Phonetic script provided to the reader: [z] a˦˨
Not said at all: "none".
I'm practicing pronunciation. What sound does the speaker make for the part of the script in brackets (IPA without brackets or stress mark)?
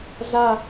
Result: z